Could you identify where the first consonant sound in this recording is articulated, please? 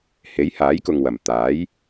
glottal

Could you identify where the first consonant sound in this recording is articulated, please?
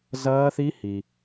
alveolar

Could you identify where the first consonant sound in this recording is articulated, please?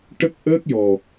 retroflex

